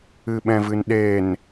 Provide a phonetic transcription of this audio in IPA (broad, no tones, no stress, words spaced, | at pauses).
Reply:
ɨɓɛ̃vɨnɗen